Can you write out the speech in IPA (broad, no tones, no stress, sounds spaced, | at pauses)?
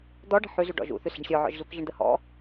d̪ ɔ ɖ ə̤ ħ ʉ z ʉ ɖ ɔ̰ ʒ ṵ θ ʉ s ɛ̤ ɳ sʲ ɔ ʕ ɔ̰ ʒ z u k ʒ ə ɳ d̪ ə h ɔ̰